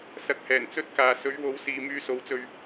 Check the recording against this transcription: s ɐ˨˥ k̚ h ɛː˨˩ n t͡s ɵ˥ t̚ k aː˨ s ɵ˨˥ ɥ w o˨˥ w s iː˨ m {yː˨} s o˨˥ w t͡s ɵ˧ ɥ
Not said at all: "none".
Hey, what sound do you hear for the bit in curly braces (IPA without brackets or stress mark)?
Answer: yː˧